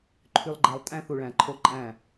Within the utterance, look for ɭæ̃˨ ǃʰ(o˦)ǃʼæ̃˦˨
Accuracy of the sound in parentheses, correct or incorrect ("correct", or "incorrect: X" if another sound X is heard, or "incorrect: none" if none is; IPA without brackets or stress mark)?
correct